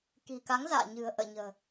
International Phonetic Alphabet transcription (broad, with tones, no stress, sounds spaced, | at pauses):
k i̤˨˩ k a˨˦ ŋ z a̰ː˧˨ ɲ ɨ̤˨˩ ə̯ ʔ ə̰ː˧˨ ɲ ə̤ː˨˩